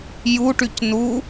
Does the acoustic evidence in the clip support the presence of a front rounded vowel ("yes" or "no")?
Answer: yes